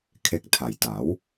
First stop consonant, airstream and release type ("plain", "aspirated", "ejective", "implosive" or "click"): aspirated